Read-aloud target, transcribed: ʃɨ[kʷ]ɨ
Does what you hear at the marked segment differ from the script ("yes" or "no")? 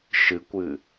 no